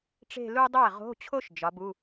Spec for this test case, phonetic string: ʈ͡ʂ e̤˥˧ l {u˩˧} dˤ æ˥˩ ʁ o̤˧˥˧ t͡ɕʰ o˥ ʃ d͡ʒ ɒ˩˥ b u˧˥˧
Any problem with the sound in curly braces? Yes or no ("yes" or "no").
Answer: yes